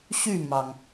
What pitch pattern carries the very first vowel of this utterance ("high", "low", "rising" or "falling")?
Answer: falling